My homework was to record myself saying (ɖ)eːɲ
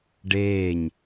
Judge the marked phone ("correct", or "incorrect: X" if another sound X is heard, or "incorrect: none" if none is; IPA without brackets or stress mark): correct